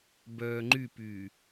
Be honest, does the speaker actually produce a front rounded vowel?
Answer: yes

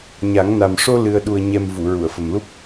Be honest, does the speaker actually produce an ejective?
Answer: no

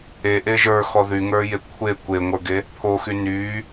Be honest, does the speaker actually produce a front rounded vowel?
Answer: yes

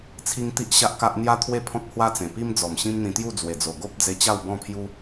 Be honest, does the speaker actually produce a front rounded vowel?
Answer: no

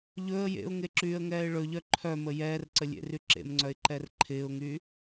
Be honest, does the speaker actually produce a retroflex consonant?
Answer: yes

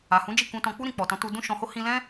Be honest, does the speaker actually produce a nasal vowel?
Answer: yes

